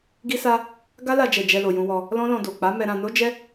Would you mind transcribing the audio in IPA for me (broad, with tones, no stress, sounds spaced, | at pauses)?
ɡ i˦ s a˦ | ɡ a˦ l a˧ d͡ʒ ɛ˨ d͡ʒ ɛ˧ l o˨ j ũ˧ w ɔ˧ | l ɔ̃˦ l ɔ̃˧ d o˨ k͡p a˨˦ m ɛ˧ ɾ ã˧ n o˦ d͡ʒ ɛ˦